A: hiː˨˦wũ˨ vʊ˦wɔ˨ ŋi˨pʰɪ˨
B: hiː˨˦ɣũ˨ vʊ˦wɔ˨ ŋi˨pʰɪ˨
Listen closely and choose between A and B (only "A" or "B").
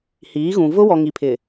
B